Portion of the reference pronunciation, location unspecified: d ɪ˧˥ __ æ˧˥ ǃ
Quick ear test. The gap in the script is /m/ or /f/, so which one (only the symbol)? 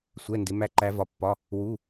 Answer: m